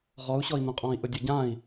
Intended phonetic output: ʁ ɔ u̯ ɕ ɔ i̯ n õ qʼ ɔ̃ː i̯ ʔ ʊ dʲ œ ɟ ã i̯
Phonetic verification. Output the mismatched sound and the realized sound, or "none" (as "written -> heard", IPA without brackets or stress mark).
none